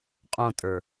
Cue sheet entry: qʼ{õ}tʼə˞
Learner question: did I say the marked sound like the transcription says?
yes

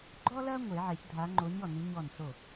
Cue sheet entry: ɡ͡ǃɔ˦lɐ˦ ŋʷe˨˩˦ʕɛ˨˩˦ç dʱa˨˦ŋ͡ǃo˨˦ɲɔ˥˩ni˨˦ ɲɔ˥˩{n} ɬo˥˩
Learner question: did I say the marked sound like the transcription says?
yes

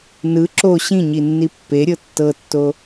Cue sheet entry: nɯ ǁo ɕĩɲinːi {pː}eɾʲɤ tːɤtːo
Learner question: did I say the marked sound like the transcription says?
yes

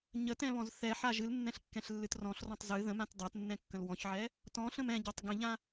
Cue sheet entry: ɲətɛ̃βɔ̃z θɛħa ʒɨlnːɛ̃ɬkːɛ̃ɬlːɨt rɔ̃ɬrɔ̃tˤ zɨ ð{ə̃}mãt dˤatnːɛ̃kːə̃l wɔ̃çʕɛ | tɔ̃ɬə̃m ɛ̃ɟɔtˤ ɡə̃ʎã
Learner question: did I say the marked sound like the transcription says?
yes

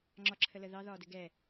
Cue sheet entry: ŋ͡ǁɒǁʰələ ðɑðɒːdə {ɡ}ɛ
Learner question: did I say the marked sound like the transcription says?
yes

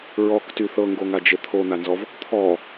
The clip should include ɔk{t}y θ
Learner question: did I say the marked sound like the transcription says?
yes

